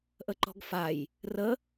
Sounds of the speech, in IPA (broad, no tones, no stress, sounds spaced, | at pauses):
ʔ ə ǃ ɔ̤ ɡ f a j | r ə